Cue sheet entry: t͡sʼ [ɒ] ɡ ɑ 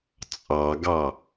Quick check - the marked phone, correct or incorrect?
incorrect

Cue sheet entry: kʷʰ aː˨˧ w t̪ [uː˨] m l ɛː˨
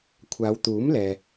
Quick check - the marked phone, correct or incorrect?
incorrect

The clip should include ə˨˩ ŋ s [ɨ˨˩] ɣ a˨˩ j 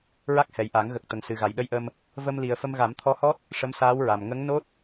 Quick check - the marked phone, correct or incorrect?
correct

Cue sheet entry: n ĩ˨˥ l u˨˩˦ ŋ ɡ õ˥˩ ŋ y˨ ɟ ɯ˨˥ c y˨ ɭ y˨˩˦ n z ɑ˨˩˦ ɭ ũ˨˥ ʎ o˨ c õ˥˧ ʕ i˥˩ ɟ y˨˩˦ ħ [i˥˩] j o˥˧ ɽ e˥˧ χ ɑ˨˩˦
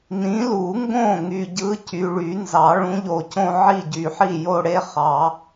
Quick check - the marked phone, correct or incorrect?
correct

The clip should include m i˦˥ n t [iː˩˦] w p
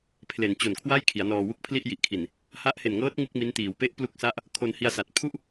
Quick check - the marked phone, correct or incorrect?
correct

